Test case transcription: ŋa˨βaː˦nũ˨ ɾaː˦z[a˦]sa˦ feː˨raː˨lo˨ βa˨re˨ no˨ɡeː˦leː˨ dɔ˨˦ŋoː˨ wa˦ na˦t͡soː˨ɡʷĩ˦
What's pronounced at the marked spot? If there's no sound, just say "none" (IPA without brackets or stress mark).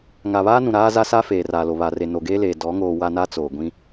a˦